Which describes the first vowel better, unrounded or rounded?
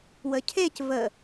unrounded